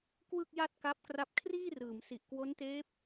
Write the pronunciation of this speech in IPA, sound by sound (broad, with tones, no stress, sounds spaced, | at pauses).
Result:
k w ɯ˥˩ k̚ j a˥˩ t̚ k a˦˥ p̚ k r a˦˥ p̚ kʰ r iː˥˩ r ɯː˩˦ m s i˨˩ ʔ k w o˦˥ n t eː˦˥ p̚